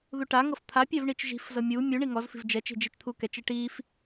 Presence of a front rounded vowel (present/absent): absent